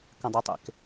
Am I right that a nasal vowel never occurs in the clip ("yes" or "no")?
no